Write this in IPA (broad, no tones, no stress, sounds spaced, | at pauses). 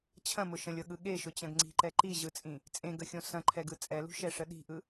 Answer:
t͡ɕʰ ɐ̃ m ʊ ʃ ə̃ lʲ ɤ ɠ ɯ ɠ e ʃ ʊ t͡ɕ ɐ̃ ɡ ŋ͡ǀ i̤ ǃ ɛ ǃ i ʑ ɯ t͡sʼ ĩ | t͡sʼ ẽ ɡ ə xʲ õ s ɐ̃ ǃʰ ɛ ɡ ɯ t͡sʼ ɛ l ṳ ʃ ɛ ʂ ə ɗ i̤ ʔ ɯ